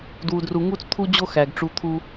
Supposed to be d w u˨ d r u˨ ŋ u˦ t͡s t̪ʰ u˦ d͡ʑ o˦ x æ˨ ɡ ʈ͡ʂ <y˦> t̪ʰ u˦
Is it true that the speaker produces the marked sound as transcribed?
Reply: no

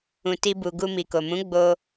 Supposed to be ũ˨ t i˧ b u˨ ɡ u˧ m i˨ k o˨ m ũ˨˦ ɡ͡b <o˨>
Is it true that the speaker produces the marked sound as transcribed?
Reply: no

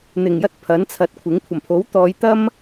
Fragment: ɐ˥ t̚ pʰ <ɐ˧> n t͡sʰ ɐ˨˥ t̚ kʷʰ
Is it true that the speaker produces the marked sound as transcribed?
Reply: no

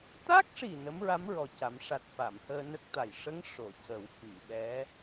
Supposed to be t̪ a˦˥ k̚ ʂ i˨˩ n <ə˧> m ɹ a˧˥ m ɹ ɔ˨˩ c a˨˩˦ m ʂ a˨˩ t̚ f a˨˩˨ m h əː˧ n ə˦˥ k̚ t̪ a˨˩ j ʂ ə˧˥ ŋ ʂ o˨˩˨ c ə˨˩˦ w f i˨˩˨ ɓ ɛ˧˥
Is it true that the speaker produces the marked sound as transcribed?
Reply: no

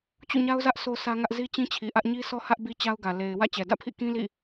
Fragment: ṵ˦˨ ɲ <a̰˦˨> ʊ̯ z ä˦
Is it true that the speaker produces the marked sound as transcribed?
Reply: no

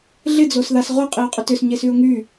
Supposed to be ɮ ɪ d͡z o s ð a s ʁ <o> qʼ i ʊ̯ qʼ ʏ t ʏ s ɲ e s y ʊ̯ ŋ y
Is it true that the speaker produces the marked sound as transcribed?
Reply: yes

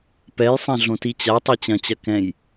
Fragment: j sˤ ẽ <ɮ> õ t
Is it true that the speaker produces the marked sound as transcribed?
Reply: yes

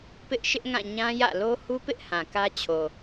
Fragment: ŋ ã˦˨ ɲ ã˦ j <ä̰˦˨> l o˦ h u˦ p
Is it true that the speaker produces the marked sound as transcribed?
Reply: yes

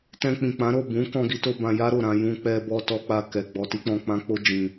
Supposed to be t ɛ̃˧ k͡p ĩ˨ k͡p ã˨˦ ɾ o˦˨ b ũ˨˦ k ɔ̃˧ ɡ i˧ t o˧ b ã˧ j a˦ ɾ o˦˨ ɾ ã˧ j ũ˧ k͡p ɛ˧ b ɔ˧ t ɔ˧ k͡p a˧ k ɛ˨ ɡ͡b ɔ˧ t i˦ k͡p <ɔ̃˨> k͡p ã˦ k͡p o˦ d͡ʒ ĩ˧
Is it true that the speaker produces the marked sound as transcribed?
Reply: no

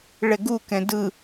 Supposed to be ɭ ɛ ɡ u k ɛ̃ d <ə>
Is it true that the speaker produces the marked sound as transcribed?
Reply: no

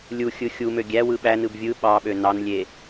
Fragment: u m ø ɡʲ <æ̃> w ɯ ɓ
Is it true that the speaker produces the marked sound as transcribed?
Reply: no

